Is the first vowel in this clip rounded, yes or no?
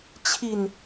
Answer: no